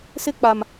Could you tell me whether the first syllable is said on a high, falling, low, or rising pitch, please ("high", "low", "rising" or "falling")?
high